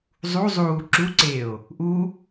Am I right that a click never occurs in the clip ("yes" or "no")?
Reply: no